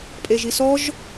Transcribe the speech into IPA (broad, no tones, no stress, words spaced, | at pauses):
pʼeʒisɔʒ